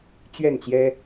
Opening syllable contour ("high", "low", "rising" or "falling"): falling